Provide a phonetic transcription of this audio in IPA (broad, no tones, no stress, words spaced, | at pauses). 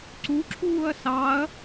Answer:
ǀuǁʰuːɐ̯ sɑɐ̯